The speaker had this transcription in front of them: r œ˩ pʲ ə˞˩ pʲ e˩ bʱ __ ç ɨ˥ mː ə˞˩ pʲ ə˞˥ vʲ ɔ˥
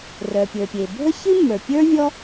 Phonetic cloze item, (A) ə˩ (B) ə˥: B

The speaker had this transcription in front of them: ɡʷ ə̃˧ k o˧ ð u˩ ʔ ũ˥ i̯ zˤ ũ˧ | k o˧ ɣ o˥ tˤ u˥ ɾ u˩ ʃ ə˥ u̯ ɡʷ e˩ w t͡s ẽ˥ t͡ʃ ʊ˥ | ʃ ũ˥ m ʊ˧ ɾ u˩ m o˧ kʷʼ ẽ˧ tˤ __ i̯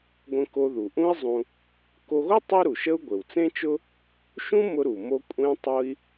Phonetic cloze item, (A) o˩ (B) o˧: B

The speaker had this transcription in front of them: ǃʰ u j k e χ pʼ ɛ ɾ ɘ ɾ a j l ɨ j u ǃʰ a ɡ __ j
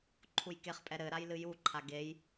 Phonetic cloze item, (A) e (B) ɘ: A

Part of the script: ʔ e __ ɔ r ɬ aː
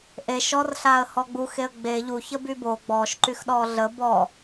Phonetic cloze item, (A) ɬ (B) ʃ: B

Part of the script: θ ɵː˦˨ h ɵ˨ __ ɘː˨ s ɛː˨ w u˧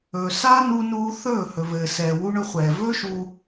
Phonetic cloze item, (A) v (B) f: A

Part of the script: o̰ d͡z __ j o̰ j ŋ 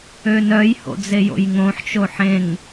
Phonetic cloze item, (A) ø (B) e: B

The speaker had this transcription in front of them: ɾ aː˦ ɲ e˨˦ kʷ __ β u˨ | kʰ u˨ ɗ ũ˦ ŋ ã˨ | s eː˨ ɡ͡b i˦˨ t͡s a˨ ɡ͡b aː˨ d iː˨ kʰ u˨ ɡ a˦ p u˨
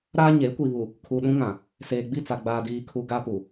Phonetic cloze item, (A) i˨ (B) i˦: A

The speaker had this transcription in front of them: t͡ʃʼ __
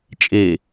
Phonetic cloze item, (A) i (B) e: B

